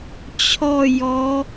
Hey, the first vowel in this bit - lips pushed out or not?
yes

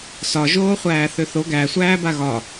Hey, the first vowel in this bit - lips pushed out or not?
yes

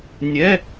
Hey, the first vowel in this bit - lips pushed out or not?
no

